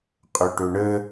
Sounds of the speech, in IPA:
qʼɵʈɵɳə

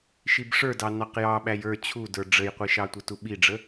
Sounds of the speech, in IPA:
ʃibʂə˞dɑ nɑqjɑ ɓæjə˞ t͡ɕʰudə˞ ɖ͡ʐəjqʷiʃɑtʷə tuɓiɖ͡ʐə

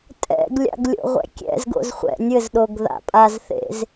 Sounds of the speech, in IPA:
tʼɛ̰ɡlʲa̰ɡ lʲo̰ʁʷɛ̰kʲɛ̰zɡo̰z χʷɛ̰nʲɘzɗoɡ ða̰pʼazθḛz

